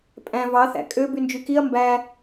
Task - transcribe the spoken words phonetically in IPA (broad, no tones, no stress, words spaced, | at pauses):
pʼæ̃ vɑθæ̰ kʼø bynd͡ʒykiɐ̯ mbæ